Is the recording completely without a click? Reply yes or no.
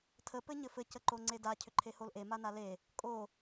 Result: no